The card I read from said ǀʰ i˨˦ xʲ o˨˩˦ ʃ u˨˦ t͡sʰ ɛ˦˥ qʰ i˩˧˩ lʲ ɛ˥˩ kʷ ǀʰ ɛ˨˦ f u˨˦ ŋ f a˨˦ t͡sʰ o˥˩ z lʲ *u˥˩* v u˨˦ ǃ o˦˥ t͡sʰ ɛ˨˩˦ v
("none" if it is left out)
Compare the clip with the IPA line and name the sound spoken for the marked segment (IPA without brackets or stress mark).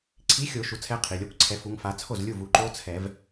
u˥˩